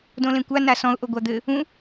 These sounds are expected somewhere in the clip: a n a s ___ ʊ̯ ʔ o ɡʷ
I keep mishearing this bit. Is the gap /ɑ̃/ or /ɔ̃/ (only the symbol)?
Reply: ɔ̃